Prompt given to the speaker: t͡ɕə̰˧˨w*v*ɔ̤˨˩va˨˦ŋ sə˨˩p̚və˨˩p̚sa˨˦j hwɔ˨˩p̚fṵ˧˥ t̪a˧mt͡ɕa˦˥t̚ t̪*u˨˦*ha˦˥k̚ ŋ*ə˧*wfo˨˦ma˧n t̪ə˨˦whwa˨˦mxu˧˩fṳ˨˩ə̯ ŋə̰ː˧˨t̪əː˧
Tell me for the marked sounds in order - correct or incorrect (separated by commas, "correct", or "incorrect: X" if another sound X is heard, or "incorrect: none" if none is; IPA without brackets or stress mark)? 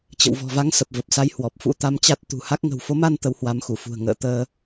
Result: correct, incorrect: ṳ˨˩, incorrect: ə̤˨˩